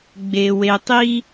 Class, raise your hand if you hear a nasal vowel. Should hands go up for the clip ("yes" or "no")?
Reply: no